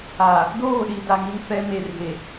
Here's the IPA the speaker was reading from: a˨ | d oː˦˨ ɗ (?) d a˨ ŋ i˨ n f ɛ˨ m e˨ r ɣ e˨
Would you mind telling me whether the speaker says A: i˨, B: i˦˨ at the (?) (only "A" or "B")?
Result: A